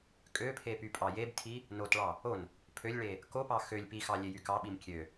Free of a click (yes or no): yes